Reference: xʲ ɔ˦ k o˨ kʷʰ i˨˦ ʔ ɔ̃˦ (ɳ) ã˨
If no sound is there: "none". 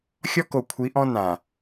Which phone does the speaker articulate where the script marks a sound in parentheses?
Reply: n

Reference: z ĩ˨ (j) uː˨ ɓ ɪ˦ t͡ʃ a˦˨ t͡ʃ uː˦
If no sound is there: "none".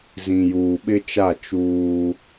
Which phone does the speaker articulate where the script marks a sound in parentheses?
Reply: j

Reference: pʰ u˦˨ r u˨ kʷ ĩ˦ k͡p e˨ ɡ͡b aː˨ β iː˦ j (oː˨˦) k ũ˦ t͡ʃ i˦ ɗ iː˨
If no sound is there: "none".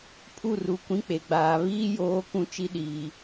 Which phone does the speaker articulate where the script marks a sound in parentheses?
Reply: oː˨˦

